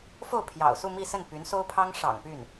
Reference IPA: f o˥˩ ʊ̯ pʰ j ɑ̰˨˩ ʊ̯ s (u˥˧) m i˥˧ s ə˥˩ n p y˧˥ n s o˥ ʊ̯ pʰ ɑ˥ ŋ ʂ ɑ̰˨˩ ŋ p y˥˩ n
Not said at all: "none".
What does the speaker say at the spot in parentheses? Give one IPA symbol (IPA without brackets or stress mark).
u˥˧